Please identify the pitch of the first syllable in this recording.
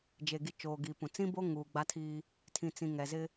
low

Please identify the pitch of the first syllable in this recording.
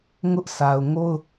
high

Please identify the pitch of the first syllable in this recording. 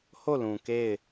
falling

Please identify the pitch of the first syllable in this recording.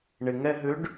low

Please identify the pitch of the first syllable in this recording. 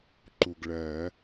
low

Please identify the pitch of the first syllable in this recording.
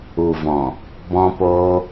low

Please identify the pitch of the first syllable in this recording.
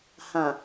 low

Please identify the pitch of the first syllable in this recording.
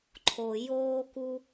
low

